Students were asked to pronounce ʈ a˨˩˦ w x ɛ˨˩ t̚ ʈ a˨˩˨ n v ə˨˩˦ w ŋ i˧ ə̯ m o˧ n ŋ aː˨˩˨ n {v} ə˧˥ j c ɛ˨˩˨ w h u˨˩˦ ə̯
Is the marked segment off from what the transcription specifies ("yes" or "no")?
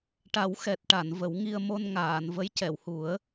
no